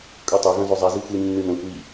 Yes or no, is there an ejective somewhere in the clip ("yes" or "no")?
yes